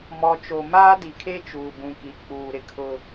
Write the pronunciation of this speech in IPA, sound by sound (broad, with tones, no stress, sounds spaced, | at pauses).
m ɔ˨ t͡ʃ o˨ m aː˦ d i˨ kʰ e˦ t͡ʃ uː˨ b ũ˨ k i˨ k͡p uː˨ ɾ ɪ˨ kʰ ʊ˦